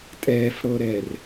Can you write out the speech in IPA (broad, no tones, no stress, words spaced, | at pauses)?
tʼɛːfɽɤɾɛr